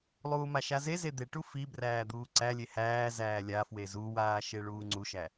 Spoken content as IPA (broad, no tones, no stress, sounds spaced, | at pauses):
lˠ uː m a ʃ a z e z e d̪ e ʈ u f i b r æː d̪ uː ǀ æ lʲ e h æː z æː lʲ a f w e z u w aː ʃ e ɭ uː ŋ͡ǀ u ʃ æ